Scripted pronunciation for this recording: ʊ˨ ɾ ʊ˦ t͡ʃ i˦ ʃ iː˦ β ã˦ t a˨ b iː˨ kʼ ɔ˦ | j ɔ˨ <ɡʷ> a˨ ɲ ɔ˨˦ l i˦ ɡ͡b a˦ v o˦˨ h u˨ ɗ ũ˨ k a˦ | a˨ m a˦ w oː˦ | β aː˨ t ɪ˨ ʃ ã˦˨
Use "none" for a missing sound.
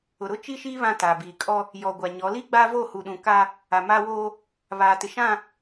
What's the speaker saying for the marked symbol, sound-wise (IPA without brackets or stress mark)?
ɡʷ